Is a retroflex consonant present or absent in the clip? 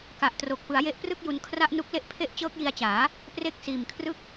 absent